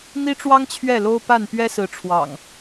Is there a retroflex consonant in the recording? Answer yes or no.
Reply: yes